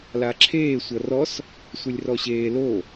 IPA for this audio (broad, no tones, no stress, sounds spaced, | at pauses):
l a ǁʰ eː sʷ ʌ r ɔ s | sʷ e lʲ r ɔ ɕ eː l o